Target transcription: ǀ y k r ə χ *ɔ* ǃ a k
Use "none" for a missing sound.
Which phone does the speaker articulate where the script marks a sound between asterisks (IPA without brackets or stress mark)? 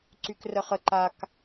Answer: ə